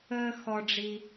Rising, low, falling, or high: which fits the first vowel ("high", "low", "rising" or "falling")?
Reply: high